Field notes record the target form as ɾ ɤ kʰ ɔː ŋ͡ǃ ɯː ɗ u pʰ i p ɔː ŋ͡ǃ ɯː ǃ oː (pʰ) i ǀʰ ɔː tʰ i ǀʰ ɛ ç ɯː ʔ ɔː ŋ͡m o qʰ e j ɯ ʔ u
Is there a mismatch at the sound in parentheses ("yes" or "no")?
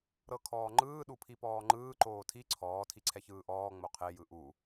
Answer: yes